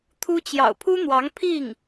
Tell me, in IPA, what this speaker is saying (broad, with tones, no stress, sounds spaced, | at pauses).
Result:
t̪ʰ u˥ t͡ɕ j ɑ̰˨˩ ʊ̯ pʰ u˥ n̪ w ɑ˧˥ ŋ pʰ i˥˩ ŋ